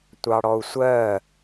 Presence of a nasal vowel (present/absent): absent